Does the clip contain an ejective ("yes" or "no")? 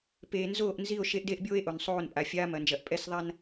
yes